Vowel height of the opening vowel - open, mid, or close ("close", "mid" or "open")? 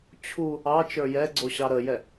close